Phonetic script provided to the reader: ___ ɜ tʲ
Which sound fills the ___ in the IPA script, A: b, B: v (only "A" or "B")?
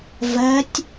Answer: B